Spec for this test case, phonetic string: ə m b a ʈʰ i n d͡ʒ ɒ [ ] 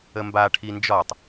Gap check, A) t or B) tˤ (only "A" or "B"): B